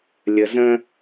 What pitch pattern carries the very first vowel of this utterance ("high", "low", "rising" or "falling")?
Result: low